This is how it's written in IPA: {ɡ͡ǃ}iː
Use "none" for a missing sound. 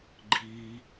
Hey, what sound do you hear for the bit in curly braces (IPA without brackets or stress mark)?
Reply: ɡ͡ǃ